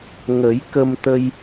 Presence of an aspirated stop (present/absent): absent